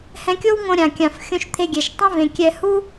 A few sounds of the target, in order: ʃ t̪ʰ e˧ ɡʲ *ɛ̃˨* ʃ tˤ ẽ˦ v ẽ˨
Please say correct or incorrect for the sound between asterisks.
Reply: incorrect